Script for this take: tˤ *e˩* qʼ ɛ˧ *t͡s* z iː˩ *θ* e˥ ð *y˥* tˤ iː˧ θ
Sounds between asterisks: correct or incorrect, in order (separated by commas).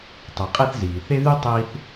correct, incorrect, correct, correct